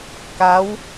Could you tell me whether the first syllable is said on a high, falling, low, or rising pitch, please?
rising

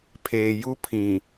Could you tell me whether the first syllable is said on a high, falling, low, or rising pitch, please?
low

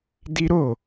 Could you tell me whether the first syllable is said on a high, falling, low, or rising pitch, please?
high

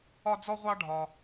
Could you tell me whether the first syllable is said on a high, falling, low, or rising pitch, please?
high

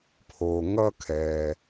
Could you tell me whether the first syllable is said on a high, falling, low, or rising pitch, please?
low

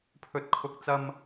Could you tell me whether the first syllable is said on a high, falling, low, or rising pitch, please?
high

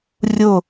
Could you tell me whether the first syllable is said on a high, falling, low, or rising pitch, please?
falling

